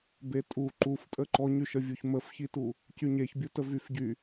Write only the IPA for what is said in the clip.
betʼu ǃuftʼə ǃɔɲyʃə vʲuçməfçitu | cyɲeçbʲutə vyfɟy

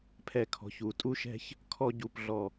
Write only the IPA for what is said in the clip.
pʰɛ˧˩kʰɔ̤˩˧ç u˩˧tʼu˥ʃɛ̤˥ç | kʰɔ˥˧ɟu˧˩pɮɔ˧˩

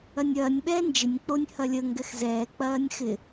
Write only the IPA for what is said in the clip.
ɐnʲɐːnʲ ɓɛːnd͡ʒɪnʲ k͡ponʲhɐlʲə ŋɡɛxzɛː k͡pɐːnʲxɪ

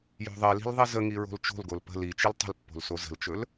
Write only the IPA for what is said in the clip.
jo̤ðˤili̤l ðˤizəŋi ɹo̤lt͡ʃo̤lɡol pə̤ lit͡ʃil tˤə̤lpːo̤l sozə̤lt͡ʃɵl

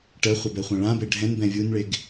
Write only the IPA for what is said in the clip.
ʈɜχʷɛbɛχʷã ɭãbe ɖʱɛ̃nbɛ̃ vʲunɭeɡ

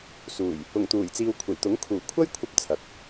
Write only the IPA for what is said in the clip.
suː˨˩j | ʊ˨˩ŋt̪uː˨˩jt͡siː˨w kʷʰe˨˩jt̪ʊ˨˥ŋ kʰuː˨˩kʷʰɐ˥j kʷʰɐ˧p̚ t͡sʰɐ˨k̚

